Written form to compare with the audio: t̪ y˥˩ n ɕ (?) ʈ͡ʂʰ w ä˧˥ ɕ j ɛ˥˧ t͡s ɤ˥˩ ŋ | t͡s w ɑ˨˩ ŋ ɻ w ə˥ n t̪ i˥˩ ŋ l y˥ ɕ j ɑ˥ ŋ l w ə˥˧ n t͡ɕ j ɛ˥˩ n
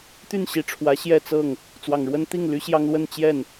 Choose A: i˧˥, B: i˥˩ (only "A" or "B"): A